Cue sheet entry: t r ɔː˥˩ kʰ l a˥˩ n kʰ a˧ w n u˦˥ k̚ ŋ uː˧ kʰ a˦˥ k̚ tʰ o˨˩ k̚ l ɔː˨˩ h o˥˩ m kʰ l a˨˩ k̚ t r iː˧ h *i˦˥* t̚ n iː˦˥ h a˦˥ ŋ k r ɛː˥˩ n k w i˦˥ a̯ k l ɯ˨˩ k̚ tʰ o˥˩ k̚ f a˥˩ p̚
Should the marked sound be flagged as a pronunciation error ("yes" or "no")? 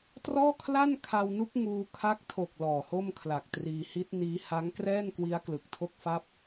no